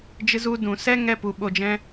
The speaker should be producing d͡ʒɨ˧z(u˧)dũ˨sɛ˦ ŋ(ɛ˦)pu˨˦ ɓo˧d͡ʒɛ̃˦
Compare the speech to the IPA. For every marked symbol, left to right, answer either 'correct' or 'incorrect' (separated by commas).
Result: correct, correct